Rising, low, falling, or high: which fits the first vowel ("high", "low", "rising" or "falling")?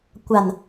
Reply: low